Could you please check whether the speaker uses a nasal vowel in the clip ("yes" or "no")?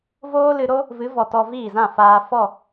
yes